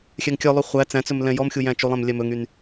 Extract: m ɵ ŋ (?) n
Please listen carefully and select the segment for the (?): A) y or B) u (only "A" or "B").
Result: A